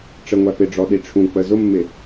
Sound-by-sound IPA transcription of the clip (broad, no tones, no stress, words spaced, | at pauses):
ʈ͡ʂəŋʷæ pɪɖ͡ʐɔɗi ʈ͡ʂʰũk͡pə zʊmːɪ